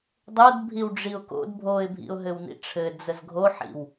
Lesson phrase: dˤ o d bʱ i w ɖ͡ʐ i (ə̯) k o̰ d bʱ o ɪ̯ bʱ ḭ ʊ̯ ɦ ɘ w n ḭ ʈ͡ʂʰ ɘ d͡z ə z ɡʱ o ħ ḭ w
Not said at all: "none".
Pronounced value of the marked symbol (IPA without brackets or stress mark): ʊ̯